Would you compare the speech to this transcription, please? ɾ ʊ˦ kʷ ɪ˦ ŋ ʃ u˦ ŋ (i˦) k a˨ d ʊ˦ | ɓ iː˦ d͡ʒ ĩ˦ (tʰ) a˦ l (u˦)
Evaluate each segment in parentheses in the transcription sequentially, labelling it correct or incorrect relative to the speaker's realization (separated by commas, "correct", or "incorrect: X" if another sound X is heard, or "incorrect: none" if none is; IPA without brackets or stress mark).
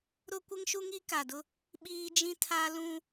correct, correct, incorrect: ũ˦